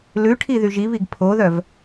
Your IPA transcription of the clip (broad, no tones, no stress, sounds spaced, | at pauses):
l ʉ ʈʰ i ð y ʒ i β i ɡ pʰ o ð œ v